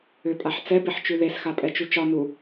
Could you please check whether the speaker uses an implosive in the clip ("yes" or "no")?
no